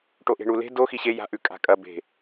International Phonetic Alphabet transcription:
ʈoʔe̤ɳule̤ do xiɕe ja̤ ʔʉkʼa̤kʼɐ be̤

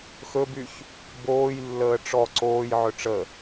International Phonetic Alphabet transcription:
xɵbyç | boːjlːəː ʈ͡ʂɔ ǀoːjʕɵ ʈ͡ʂə

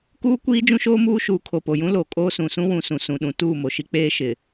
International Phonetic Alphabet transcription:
kuː˦kʷiː˦ d͡ʒũ˦ʃoː˦muː˦ʃuː˨ kʰo˨po˨jũ˦ lo˨kʼoː˦ sũ˨sũ˦wũ˨sũ˨ sũ˨ɗũ˨ tuː˦˨mo˨ʃi˦k͡peː˦ ʃɪ˨

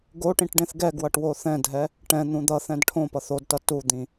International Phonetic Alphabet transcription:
ɡoʈĩʈ ɖẽθɡɛɡwʌʈ woθɛ̃dʱɛ | ʈɛ̃n̪ũ d̪ʌθɛ̃d ʈʰõpʌθ odtʌ tud̪ĩ

